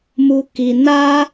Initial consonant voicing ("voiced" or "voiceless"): voiced